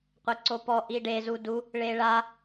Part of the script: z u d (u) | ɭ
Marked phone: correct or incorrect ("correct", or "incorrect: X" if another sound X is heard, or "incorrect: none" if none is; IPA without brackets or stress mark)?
correct